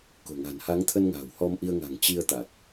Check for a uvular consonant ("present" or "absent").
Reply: absent